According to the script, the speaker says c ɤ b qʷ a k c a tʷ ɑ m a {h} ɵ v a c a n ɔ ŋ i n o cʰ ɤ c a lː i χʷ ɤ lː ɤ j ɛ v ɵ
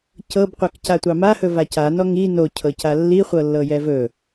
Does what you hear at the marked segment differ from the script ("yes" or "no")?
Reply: no